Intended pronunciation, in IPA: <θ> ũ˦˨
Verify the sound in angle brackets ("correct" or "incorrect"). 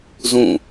incorrect